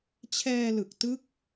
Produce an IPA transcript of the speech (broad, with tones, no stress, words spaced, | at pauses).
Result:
t͡ɕʰɛː˧lɯ˨˩k̚ tɯ˦˥k̚